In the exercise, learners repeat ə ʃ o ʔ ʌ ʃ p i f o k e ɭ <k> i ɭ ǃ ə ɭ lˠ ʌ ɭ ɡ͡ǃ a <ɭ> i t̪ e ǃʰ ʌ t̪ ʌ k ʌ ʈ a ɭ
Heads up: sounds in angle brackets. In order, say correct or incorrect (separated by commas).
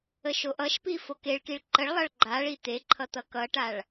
correct, correct